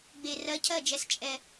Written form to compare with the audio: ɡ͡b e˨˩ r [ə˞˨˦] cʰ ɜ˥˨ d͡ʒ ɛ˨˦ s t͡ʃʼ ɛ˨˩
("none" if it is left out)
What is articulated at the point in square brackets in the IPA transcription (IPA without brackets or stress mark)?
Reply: ɜ˨˦